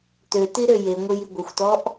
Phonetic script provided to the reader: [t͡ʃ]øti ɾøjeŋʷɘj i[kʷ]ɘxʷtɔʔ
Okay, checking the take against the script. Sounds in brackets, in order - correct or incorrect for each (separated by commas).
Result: incorrect, incorrect